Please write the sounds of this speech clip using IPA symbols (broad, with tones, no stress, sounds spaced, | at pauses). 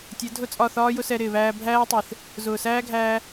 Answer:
tʲ ɛ˨˦ dʱ ʊ˦˨ t͡sʼ ɒ˦˨ θ ɒː˦ j ʊ˦ s ɛ˧ ɾ ɪː˨ β æː˧ bʱ æː˦ tˤ ɪː˨ θ | z ʊː˨ s æː˦ ɡʱ æː˧